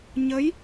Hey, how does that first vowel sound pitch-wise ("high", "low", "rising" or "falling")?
rising